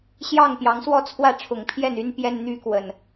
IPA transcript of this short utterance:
ɕ j ɑ˥˨ ŋ p j ɑ˨˦ ŋ s w ɔ˥˨ t͡sʰ w ä˥˨ ʈ͡ʂʰ ʊ˨˩ ŋ pʰ j ɛ˥˨ n y˦ n p j ɛ˦ n n̪ y˦ k w ə˨˩ n

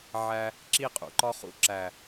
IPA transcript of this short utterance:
ʕ æ˧ | ǁ i˦˨ qʼ ṵ˨ ǃ ɒ˦ χ ṵ˦ ǁ æ˨

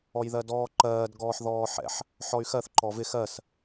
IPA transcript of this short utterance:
ɔ j ð ɜ d ɔː ǃ ɜː d ɡ ɔː ħ ð ɔː ħ ɛ̰ ħ | ħ ɔ y̯ x ɜ θ ǃ ɔ v ɪ x ɜ s

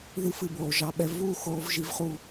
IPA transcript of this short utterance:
ð ɨ˨˦ f ɨ˨ b oː˨ ʒ ɑ˧ ɓ ɛ˧ v uː˦˨ x oː˧ v ʒ i˧ v χ u˧

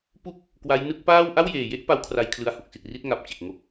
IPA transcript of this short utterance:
p u˥˩ k̚ | k w a˦˥ j n ɯ˦˥ k̚ p aː˥˩ w ʔ a˥˩ w j eː˨˩ j e˥˩ ʔ p a˦˥ w kʰ r a˧ j kʰ l ɯ˧ a̯ h u˨˩ k̚ s i˨˩ t̚ r i˥˩ t̚ ŋ a˨˩ p̚ t͡ɕ e˨˩ k̚ ŋ o˦˥ k̚

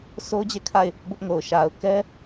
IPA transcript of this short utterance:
s o˦ ʊ̯ d͡ʑ e˦˨ kʰ a˦˨ ɪ̯ | b ʊ˦ ʔ ŋ o˨ ʊ̯ ʃ a˨ ʊ̯ k ɛ˦

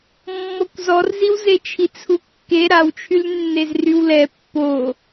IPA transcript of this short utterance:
mː ɔ kʷ z ɔ r z i w z e t͡ʃʰ i t͡sʰ u kː e ɾ a w t͡ʃʰ y l nː e z r y w l ɛ pː o

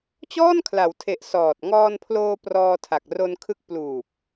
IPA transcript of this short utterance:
t͡ɕ ɔː˥˩ n kʰ l a˩˦ w tʰ e˨˩ ʔ s ɔː˨˩ t̚ ŋ ɔː˧ n pʰ l oː˧ p r ɔː˧ tʰ a˨˩ k̚ r o˧ n kʰ ɯ˦˥ k̚ p l uː˨˩ p̚

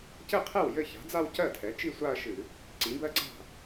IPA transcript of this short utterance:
c ɘ˥˩ qʰ ɛ˥˩ w j ɘ˥˩ ç a̤˩˥ d͡z a˥˧ w c ɜ˥˩ tʰ ɛ˩˥ t͡ʃ i˥˧ sʷ a˥˧ ɐ̯ ʃ ɨ˧˩˧ | ǀ ĩ˩˥ b ɜ˥˧ ǀ a̤˥˩

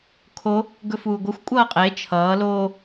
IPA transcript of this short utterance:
kʰ o | ɡ ɵ f uː ɡʷ ʌ xʷ kʷʼ ʌː qʼ e t͡ʃʰ ʌː l oː

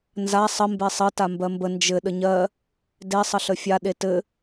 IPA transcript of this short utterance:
n z a sˤ ə m b e sˤ ɘ t a m b ɜ m b ə n d͡ʒ ɘ ɗ ə ɲ ɜ | d e sˤ ə ɬ ə fʲ a ɗ e t ɘ

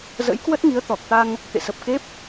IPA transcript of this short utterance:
z ə̰˧˥ j k w ə˦˥ t̚ ŋ i˨˦ ə̯ t̪ ɔ˨˩ k̚ t̪ a˧ ŋ | t̪ ḛ˧˨ s ə˨˩ p̚ k e˦˥ p̚

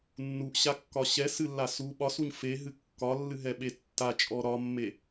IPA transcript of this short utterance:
nː u ʔ ɕ a kː ɒ ɕ ɛ s ɨ lː a s u ɓ ɒ s u ɲ f e ɦ ɨ kː ɒ lː ɨ ɦ ɛ ɓ e tː a t͡ʃʼ ɔ ɾ ɒ mː e

